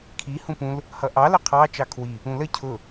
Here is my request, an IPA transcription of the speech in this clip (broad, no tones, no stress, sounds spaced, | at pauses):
kʰ i h ũ p ũ l | h ʌ ʔ ɑ l ə qʰ ɑ t͡ʃ ɑ kʰ w i | ũ l ə cʰ ʊ